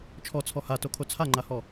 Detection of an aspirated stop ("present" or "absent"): present